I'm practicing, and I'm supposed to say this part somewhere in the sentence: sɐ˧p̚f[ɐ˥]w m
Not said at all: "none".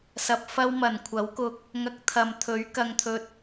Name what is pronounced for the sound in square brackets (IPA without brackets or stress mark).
ɐ˥